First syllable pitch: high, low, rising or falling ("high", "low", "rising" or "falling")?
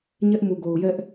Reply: high